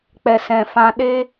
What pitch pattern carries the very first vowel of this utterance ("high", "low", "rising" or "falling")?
low